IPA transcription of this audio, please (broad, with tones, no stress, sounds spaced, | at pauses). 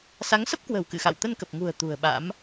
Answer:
s a˨˦ ŋ s ə˦˥ p̚ k w ə̤˨˩ w k ɨ̰˧˨ x a̰˧˨ w t̪ ə˧ n k ə˨˩ p̚ ŋ ṳ˨˩ ə̯ t̪ ṳ˨˩ ə̯ ɓ a̰˧˥ m